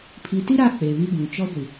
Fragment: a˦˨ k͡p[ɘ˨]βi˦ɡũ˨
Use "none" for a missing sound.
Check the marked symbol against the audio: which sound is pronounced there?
e˨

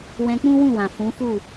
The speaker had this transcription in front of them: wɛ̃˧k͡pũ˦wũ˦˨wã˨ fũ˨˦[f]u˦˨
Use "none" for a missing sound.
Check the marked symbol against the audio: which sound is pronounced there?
f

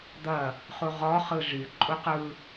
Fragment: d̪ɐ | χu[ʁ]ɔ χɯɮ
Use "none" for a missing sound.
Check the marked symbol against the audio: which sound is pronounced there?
ʁ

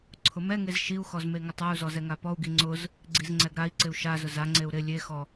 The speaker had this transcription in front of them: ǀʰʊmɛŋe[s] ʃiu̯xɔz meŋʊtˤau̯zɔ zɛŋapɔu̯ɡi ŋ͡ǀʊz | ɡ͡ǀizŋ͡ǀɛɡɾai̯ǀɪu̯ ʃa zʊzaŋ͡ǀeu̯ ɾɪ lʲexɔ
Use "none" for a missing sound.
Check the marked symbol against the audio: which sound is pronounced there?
z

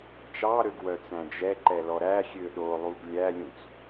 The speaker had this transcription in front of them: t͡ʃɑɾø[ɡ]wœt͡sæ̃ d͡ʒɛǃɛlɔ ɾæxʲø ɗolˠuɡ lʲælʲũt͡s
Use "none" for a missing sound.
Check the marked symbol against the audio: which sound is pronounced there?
ɡ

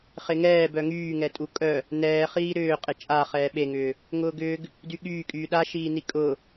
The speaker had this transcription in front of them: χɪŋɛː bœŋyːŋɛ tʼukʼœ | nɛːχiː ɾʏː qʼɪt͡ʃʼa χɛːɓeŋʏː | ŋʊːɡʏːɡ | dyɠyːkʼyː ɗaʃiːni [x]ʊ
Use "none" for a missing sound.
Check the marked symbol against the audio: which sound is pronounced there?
kʼ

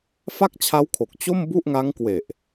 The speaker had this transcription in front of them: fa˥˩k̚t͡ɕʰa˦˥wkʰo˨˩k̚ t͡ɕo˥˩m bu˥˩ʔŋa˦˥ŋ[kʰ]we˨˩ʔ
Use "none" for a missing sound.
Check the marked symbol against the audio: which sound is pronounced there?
k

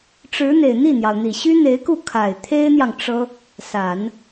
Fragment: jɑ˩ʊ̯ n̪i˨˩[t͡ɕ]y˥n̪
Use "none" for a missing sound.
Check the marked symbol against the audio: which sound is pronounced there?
ɕ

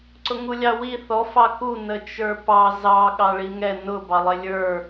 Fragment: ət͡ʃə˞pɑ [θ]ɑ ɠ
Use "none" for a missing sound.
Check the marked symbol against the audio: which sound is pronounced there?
z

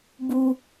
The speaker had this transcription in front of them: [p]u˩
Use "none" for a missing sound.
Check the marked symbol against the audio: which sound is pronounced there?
b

